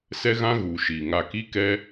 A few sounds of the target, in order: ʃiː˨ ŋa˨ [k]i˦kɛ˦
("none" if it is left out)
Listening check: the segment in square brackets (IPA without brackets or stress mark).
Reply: k